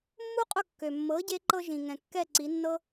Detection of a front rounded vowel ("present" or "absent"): present